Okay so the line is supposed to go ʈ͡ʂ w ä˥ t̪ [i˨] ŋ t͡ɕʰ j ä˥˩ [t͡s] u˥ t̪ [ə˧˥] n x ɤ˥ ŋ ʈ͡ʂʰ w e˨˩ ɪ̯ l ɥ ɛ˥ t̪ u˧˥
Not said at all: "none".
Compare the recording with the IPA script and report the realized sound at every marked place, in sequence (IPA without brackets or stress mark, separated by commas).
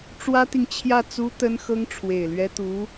i˨, t͡s, ə˥